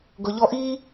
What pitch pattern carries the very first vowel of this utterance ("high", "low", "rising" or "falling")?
low